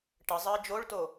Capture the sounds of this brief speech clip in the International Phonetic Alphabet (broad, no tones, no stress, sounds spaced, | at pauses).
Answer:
ʈ ə zˤ əː d͡ʒ o ɭ t o